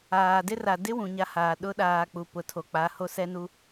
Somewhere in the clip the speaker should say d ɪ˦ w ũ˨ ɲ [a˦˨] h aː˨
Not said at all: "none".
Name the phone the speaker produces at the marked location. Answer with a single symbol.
a˦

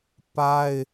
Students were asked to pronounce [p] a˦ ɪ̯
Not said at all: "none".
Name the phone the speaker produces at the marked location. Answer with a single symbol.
p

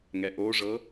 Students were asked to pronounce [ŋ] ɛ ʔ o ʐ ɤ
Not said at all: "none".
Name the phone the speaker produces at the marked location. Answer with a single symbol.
ŋ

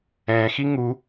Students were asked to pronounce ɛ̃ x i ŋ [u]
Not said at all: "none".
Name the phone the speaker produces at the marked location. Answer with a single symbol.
u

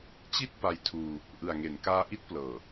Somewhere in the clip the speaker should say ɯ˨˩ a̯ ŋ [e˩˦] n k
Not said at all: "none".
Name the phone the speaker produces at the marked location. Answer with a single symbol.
e˩˦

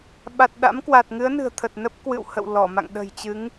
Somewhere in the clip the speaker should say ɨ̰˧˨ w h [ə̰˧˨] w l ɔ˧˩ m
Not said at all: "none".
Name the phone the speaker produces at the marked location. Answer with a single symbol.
ə̰˧˨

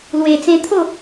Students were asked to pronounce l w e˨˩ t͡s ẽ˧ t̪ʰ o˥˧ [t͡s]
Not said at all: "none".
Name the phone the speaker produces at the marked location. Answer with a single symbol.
none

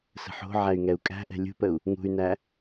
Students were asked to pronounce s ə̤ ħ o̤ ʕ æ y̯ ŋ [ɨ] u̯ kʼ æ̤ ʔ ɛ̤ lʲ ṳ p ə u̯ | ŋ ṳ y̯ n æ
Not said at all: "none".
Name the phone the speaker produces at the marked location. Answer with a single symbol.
ɛ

